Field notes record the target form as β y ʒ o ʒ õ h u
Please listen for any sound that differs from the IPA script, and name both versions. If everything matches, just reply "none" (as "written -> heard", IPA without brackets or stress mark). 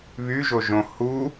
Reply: none